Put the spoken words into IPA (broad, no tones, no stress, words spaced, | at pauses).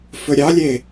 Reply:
fɵɾʲɑlʲe